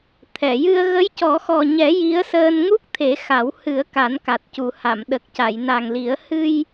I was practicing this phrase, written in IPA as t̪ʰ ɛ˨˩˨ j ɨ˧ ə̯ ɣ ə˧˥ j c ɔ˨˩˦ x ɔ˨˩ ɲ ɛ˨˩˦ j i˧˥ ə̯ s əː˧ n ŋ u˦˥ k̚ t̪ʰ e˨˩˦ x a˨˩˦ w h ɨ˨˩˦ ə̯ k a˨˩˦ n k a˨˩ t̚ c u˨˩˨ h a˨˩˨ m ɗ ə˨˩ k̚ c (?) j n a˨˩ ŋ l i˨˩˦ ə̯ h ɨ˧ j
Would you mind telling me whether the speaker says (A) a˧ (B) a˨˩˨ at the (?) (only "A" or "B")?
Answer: B